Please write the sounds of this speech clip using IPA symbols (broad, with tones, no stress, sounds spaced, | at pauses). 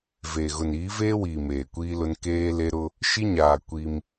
v e˨ ɣ ʊ˨ n iː˨˦ v eː˦ w iː˨ m eː˨ kʷ iː˦ l ʊ˦ n k eː˦ l e˦ ɾ ʊ˦ | ʃ i˦ ɲ aː˨ kʷ i˦ m